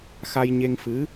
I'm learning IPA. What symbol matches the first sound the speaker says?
x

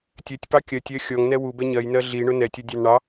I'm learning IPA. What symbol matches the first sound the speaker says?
tʲ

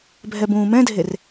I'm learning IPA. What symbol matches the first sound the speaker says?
bʱ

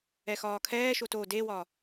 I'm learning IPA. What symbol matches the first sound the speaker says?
ɛ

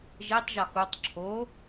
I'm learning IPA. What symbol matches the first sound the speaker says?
ʒ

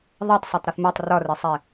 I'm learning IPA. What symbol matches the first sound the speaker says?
ðˤ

